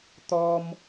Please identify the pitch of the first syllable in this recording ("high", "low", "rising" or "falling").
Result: high